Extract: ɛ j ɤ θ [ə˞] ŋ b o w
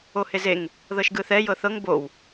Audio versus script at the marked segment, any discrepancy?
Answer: yes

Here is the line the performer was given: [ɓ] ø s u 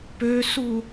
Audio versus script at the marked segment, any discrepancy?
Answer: yes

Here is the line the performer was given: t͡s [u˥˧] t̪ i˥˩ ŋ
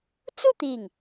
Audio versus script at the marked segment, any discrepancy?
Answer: no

